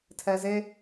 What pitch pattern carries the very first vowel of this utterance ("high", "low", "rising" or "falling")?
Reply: low